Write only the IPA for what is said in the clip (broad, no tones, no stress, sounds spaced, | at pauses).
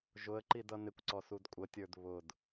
ʒ ʊ ə̯ ǃ i d ʌ n ɪ kʷ ǀ ɔ s u d kʷʼ ə tʲ ə˞ d β ʊ d